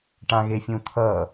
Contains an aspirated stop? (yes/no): yes